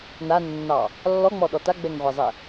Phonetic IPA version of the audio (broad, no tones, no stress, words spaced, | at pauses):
nanːɑ | lːɔŋ͡mɔɗɔ taɡ͡bɛŋʁʷɛzˤɛ